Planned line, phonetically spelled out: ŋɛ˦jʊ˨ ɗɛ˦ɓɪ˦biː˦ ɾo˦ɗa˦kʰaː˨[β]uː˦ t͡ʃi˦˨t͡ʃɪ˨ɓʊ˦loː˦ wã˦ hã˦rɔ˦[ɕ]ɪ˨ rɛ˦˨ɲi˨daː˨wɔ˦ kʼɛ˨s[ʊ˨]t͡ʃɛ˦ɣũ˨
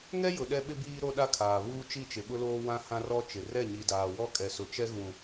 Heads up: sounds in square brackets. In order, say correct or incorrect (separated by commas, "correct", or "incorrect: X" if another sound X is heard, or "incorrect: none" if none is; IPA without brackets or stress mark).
correct, incorrect: t͡ʃ, correct